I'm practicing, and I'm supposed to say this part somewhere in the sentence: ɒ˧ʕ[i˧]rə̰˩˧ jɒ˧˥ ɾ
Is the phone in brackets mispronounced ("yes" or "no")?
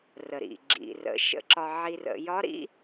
no